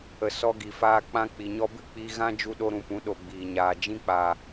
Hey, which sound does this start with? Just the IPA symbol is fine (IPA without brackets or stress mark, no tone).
ə